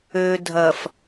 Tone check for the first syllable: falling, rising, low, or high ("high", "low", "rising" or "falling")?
low